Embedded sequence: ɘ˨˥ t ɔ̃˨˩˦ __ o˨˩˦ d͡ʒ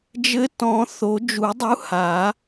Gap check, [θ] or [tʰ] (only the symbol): θ